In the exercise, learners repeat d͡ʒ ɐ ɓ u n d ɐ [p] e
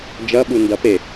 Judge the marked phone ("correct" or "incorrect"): correct